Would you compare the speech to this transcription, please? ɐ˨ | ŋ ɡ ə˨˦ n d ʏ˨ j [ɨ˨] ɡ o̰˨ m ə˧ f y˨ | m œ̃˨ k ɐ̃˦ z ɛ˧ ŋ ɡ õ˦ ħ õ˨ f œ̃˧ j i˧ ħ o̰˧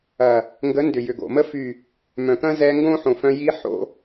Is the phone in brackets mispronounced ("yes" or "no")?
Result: yes